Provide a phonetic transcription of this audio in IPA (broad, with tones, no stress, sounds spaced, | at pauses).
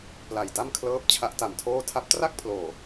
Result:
p l a˨˩ j d a˥˩ m kʰ l ɤː˦˥ p̚ t͡ɕʰ a˦˥ ʔ t a˨˩ m tʰ oː˥˩ tʰ a˦˥ p̚ t r a˥˩ k̚ pʰ l oː˨˩